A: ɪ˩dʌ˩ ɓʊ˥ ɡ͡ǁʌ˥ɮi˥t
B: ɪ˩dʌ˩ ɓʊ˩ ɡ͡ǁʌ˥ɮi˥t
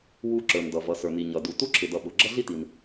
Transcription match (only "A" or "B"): B